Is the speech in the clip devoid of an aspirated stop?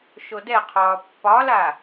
no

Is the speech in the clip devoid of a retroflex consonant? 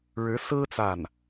no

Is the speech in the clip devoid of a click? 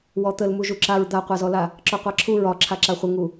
no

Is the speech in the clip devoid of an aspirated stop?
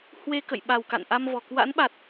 yes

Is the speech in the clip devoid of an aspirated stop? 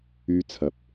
no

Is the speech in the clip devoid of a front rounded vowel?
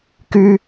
no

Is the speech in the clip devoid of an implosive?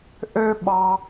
no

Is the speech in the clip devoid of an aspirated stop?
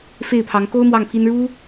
no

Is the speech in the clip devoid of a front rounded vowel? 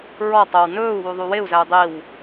yes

